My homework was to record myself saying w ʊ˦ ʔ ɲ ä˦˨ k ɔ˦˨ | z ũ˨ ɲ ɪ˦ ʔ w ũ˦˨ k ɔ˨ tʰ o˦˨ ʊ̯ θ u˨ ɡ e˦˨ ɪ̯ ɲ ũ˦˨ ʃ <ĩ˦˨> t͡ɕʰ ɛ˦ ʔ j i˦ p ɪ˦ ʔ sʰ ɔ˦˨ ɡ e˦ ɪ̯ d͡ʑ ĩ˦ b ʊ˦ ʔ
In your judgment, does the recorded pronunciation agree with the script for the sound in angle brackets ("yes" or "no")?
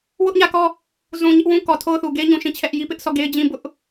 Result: yes